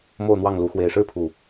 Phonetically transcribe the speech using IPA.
m o˥˨ ʊ̯ n̪ w ɑ˥˨ ŋ l u˨˦ x w e˨˩ ɪ̯ ʂ ɻ̩˥˨ pʰ u˨˩

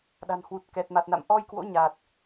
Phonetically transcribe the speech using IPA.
ɗ a̤˨˩ n h w u˨˩ t̚ k ɛ˨˩ t̚ m a˨˩ t̚ n a̰˧˨ m ʔ ɔ˧ j k w o̰˧˥ ɲ a˨˩ t̚

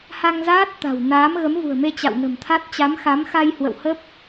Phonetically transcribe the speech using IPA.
h a˧ ŋ z aː˦˥ t̚ t̪ a̤˨˩ w n aː˨˦ m ɣ ə˨˦ m v ṳ˨˩ ə̯ m e˧ t͡ɕ a̰˧˨ w n ə̤˨˩ m t̪ʰ a˦˥ t̚ t͡ɕ a˨˦ m x a˨˦ m x a˧ j h w ə̰˧˨ w h ə˦˥ p̚

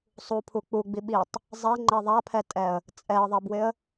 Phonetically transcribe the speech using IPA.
sˤ u pʰ u k͡p u ɡ͡b i ɓ i tˤ | zˤ ɛ ŋ͡ǃ ɛ ðˤ a pʰ ɛ tʼ ɛ ə̯ | t͡sʼ ɛ ə̯ ðˤ ɛ b w ɪ ə̯

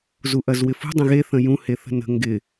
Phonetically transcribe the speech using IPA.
z u ʔ ɐ z w ɪ f ṳ dˤ ə̃ ɣ e θ ə̃ j ũ h e θ ə̤ n ə̤ ŋ ɡ ɪ

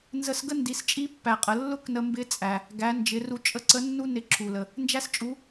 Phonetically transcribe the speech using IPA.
n z ə˧ s ɡ ə˥ n d i˩˧ s t͡ʃʼ i˧˥ pː æ˩ qʼ ə˩ lː ʊ˥ k n ə˧ m b ɪ˧˥ t͡sʼ æ˩ | ɡ æ˩˧ n d͡ʒ ɪ˩˧ r u˧ t͡ʃʼ ə˧ ǀ ə˧˥ nː u˥ n ɪ˧˥ ǁʰ u˩ l ə˩ | n d͡ʒ æ˥ s t͡ʃʼ u˧˥

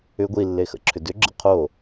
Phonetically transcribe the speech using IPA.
ʏ ɡʷ i lː e x ə̰ ǁʰ ʏ d ʏ ɡ͡ǁ ə̰ qʰ o

